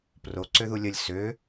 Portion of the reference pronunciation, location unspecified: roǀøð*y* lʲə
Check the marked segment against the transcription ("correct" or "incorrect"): incorrect